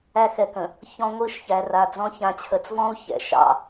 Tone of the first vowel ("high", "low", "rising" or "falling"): high